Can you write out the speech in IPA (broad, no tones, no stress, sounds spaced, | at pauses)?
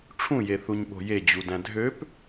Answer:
ʈ͡ʂʰ ũ j e θ u ɲ ɓ o̤ j e d͡ʑ u d æ̃ dʱ ø p